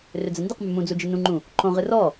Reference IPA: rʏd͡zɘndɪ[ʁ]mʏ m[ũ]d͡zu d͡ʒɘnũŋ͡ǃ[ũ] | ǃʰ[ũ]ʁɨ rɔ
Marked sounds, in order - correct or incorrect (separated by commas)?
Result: incorrect, correct, correct, incorrect